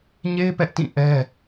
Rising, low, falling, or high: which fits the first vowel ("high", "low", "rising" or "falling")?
high